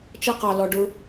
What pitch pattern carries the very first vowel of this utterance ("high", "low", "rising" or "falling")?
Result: high